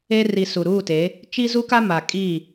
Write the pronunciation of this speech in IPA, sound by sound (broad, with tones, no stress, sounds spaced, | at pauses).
e˦ r i˨ s u˨ ɾ uː˦˨ t e˨˦ | t͡ʃ i˦ z u˦ k a˦ m a˨ kʼ iː˦˨